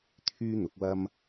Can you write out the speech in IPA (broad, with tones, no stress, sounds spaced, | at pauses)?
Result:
t̪ʰ yː˥ n̪ ʊ˨˥ k̚ w ɐ˥ m